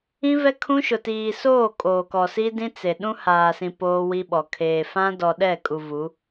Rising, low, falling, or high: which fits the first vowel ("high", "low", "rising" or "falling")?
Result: high